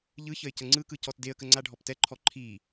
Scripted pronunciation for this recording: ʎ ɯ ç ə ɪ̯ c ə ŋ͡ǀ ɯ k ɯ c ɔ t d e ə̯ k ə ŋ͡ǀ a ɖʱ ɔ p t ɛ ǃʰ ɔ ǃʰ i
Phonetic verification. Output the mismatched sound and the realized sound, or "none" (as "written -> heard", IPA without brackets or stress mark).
none